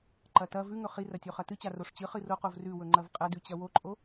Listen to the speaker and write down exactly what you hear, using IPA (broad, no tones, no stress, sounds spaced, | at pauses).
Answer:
ǃ ɐ t ɐ v ʉ ŋ ɵ χ i r ɐ tʲ o χ ɐ t ɨ t͡ɕ a r o ʂ t͡ɕ ɨ χ ɨ r o q o v r ʉ w ɵ ŋ͡ǃ ɐ v qʼ ɐ d ʉ t͡ɕ ɐ w o ǃʼ o